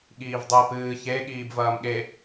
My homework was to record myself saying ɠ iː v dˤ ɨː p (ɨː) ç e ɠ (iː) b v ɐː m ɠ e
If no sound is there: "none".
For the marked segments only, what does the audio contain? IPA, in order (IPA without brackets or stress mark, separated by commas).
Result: ɨː, iː